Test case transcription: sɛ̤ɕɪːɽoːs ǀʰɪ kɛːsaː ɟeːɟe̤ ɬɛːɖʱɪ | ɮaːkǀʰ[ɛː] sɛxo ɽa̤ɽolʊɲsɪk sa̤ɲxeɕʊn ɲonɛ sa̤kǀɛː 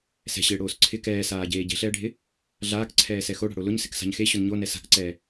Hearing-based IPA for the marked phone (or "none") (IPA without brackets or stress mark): ɛː